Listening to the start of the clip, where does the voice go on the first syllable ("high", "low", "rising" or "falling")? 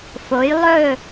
rising